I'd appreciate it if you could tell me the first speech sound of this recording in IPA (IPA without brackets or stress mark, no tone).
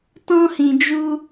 t